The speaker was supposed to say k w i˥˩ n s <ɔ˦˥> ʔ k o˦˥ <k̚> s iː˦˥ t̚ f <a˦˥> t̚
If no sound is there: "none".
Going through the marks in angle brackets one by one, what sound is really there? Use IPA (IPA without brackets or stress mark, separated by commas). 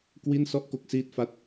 ɔ˥˩, k̚, a˥˩